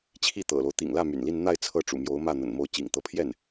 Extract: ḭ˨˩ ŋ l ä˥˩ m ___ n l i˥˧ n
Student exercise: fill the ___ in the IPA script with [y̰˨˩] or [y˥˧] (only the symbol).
y̰˨˩